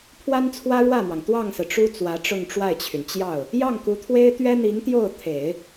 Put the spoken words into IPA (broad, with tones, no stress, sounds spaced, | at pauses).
pʰ w a˥ n t͡sʰ w ä˥ ɻ w ä˥˩ m w ɑ˩ ŋ t̪ w ɑ˥˩ ŋ s ɹ̩˩ ʈ͡ʂ u˥ t͡s w ä˧˥ ʈ͡ʂ ʊ˥˧ ŋ ʈ͡ʂ w a˥˩ ɪ̯ t͡ɕʰ y˩ n t͡ɕ j ɑ˥˩ ʊ̯ | j ɑ˥˩ ŋ k u˧˥ t̪ʰ w e˥ ɪ̯ t̪ ɥ ɛ˥ n̪ i˧˥ ŋ t̪ j o˥˩ ʊ̯ t̪ʰ e˨˩˦ ɪ̯